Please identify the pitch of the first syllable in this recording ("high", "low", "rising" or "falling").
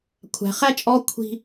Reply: low